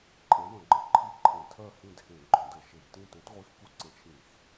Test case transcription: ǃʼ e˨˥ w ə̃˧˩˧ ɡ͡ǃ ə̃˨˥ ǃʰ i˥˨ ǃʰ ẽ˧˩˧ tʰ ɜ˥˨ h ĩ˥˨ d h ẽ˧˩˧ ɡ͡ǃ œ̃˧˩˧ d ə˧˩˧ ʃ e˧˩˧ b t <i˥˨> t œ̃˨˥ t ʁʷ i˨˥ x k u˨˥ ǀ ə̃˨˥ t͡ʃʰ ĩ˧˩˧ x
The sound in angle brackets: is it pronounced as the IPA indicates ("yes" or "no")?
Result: no